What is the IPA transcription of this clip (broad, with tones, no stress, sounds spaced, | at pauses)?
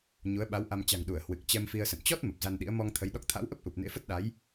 ɲ u˨˦ ə̯ ɓ a˨˦ w ʔ a˧ m t͡ɕ a̤˨˩ ŋ ɗ u˧˩ ə̯ h w ɨ˨˩ k̚ t͡ɕ ɛ˧ m f i˧ ə̯ s ə̰˧˨ n t͡ɕ ɔ˦˥ t̚ m ə˨˩ p̚ z a˧ n ɗ ḭ˧˥ ə̯ m ɔ˧ ŋ t̪ʰ ə˨˦ j ɗ ɔ˦˥ k̚ t̪ʰ a̰˧˥ w ʔ ə˦˥ p̚ ʔ u˨˩ p̚ n ḛ˧˥ f ə˦˥ t̚ ɗ a˨˦ j